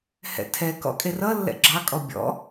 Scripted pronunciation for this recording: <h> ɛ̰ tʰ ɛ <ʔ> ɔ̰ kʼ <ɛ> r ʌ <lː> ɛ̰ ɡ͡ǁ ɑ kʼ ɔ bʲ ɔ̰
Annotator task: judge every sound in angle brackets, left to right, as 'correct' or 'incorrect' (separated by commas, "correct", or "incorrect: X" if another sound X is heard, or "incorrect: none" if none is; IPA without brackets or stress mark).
correct, incorrect: k, incorrect: e, correct